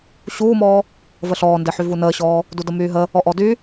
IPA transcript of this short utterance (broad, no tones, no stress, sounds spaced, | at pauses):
ɕ uː m ɔː | v ə ɬ ɔː n d e ħ y v u n əː ɕ ɔː | d u d ə m yː ɦ ə | ɔ ʔ ɔ d y